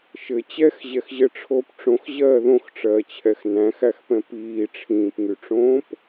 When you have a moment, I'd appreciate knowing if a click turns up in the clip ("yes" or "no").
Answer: no